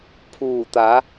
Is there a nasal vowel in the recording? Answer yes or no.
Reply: no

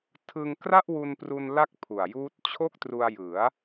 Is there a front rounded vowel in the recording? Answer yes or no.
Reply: no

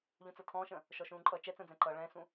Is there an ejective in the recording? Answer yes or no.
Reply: yes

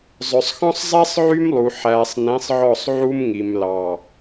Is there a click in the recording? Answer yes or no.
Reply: no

